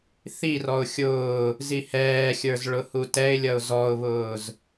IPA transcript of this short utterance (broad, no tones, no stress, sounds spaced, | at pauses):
θ i r ɔ ʊ̯ xʲ ʊː | z i h ɛː xʲ ə˞ z ɭ ʊ h u t ɛ ɪ̯ lʲ ʌ ʊ̯ z ɔ ʊ̯ β ʊː z